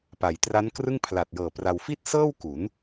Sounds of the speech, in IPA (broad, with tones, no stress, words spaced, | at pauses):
pa˩˦jtra˦˥nkrɯ˥˩ŋ pʰla˨˩t̚jɤː˨˩ pra˧w fi˥˩t̚sɤː˥˩w ku˩˦n